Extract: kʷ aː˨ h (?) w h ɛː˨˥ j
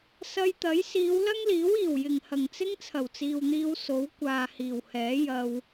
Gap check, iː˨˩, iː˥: iː˨˩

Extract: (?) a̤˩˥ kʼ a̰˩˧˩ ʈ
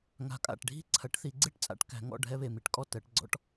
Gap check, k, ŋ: ŋ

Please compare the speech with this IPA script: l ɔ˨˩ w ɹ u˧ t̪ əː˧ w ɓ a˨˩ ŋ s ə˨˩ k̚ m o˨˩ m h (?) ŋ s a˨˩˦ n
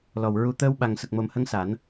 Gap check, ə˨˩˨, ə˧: ə˧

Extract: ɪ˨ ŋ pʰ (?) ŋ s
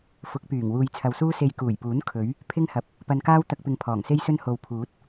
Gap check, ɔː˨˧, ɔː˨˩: ɔː˨˩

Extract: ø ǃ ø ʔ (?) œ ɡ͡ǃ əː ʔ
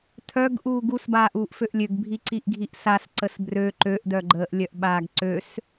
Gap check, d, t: d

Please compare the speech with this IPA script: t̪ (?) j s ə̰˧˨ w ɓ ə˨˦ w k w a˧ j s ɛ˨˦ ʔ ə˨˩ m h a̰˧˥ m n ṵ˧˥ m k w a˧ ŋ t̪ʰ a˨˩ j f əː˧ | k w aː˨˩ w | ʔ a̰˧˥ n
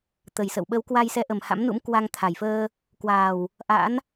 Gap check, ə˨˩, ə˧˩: ə˨˩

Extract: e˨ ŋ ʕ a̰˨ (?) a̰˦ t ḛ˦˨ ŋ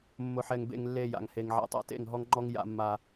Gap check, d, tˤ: tˤ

